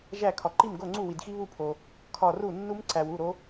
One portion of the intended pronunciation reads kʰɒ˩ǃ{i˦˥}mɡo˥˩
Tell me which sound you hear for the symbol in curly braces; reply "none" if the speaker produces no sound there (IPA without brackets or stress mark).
i˥˩